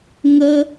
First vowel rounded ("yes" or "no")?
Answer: no